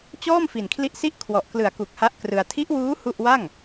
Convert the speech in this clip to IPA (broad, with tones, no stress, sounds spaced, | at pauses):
t͡ɕ ɔː˥˩ m f i˨˩ n kʰ l i˦˥ ʔ s i˥˩ ʔ kʰ w ɔ˨˩ ʔ k l ɯ˨˩ a̯ k u˨˩ k̚ h a˦˥ ʔ k r ɯ˧ a̯ tʰ i˦˥ ʔ w uː˦˥ h u˥˩ ʔ w a˥˩ ŋ